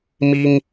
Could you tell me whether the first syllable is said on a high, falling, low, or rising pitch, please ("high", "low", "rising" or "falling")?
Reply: high